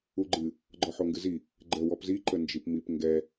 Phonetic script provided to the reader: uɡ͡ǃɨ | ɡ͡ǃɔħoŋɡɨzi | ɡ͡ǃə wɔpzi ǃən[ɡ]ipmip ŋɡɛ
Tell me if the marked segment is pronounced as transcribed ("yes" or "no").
no